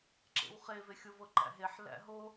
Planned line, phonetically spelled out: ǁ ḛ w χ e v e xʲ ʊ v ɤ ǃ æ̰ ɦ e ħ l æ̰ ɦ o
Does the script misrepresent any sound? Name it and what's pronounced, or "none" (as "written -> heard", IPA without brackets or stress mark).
none